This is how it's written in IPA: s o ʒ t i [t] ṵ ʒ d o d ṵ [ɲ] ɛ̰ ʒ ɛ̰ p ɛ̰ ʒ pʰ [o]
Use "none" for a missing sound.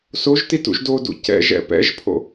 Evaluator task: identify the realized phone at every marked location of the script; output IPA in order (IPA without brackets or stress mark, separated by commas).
t, c, o̰